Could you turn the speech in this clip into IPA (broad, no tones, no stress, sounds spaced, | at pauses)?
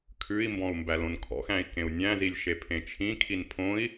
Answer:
kʰ ʉ i̯ m b ɔ̃ u̯ m b æ l õ n kʰ ɔ̰ x æ̃ i̯ k ẽ u̯ nʲ æ̃ z i lʲ ʃ e pʰ ẽ t͡ʃʰ ĩ kʰ i n pʰ õ i̯